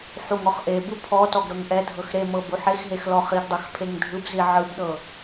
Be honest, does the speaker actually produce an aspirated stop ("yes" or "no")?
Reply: yes